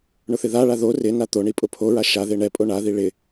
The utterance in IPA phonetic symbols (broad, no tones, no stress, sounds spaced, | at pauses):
ɳ ʊ θ ɪ ð a ɭ a ð o r ɪ n a t̪ o ɳ i pʼ ʊ pʰ o ɹ a ʃ a ð e ɳ ɛ pʼ o ɳ a ð i ɭ ɪ